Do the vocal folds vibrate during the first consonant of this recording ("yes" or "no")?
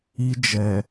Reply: yes